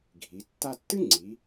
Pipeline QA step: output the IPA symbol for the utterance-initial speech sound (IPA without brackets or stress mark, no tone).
ɡʱ